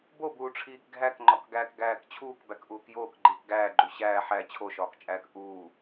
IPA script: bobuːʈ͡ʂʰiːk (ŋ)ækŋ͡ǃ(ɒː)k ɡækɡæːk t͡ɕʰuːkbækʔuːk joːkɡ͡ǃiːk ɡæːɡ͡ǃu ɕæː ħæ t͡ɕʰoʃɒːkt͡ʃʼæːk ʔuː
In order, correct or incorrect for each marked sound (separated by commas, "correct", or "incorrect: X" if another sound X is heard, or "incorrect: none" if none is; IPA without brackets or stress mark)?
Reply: incorrect: ɡʱ, incorrect: ɒ